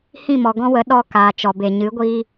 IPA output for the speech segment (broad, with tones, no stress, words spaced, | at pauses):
hĩ˦˨mɔ˨ɡɔ̃˦wə˨˦ ɗɔ˧ kaː˨t͡ʃɔ˨be˨ ɲɨ˨˦ɡʷiː˦